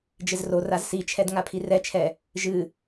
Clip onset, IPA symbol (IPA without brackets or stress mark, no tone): d͡ʒ